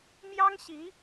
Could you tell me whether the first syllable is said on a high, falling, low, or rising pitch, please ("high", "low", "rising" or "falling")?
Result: high